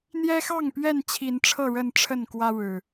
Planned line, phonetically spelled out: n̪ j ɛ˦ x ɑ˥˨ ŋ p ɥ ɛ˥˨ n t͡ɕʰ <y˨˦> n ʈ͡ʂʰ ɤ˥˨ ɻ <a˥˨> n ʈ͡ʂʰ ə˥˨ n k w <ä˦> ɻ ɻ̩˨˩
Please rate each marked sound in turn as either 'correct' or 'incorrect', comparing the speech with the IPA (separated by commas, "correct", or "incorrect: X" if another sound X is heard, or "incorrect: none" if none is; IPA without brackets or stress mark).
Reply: incorrect: i˨˦, incorrect: ə˥˨, correct